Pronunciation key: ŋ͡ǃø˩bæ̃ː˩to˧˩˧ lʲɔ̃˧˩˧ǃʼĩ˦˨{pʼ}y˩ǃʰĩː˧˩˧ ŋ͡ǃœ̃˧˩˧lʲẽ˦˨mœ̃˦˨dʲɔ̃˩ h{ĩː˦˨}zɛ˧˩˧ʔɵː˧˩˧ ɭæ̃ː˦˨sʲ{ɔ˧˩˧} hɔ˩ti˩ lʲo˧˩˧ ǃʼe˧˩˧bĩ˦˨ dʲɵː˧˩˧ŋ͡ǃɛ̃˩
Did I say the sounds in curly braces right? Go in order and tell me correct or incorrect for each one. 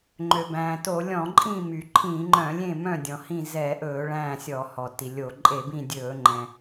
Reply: incorrect: m, incorrect: ĩ˦˨, correct

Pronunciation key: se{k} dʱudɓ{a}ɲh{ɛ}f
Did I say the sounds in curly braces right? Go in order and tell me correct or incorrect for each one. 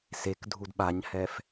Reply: correct, correct, correct

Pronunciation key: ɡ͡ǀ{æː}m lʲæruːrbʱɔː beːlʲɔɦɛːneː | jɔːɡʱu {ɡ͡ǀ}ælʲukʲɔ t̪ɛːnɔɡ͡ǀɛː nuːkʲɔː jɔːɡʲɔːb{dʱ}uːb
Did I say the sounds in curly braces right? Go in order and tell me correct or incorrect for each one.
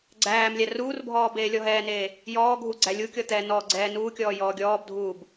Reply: correct, correct, correct

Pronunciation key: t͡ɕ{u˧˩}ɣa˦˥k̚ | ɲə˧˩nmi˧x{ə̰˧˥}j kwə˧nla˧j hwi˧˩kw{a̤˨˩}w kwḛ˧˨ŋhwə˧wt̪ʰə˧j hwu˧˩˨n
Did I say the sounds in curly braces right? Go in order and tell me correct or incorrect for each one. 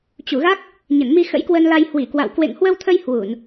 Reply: correct, correct, incorrect: a̰˧˨

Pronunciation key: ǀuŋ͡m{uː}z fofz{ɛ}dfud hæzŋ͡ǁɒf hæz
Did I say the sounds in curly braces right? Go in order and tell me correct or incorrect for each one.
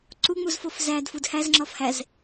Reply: incorrect: u, incorrect: æ

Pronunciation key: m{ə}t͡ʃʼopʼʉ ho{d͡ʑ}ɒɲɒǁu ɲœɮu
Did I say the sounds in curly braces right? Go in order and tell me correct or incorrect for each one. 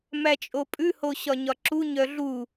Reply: incorrect: æ, incorrect: ɕ

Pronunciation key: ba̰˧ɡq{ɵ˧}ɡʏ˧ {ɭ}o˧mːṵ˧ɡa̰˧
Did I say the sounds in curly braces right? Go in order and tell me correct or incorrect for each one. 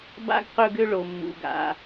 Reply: correct, correct

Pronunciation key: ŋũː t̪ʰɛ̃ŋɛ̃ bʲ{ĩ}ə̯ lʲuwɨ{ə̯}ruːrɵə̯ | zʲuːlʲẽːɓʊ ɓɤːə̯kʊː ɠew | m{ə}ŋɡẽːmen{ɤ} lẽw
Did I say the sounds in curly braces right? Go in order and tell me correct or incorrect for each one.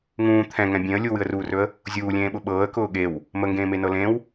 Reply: incorrect: ẽ, correct, correct, correct

